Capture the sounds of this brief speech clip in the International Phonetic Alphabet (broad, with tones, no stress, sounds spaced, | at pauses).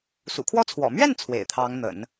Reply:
s ṵ˨˩ kʰ w ɔ˥ t͡sʰ w ɔ̰˨˩ m ɥ ɛ˥˩ n t͡sʰ w ḛ˨˩ ɪ̯ t̪ʰ ɑ˧˥ ŋ n̪ ə̰˨˩˦ n